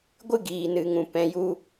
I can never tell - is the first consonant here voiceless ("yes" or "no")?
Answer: no